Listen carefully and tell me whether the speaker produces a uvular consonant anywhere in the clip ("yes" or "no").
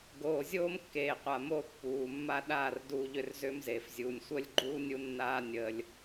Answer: yes